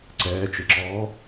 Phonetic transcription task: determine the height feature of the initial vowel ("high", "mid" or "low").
mid